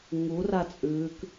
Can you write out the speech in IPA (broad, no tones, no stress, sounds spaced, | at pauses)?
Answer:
ŋ u r a t͡sʼ ʉ k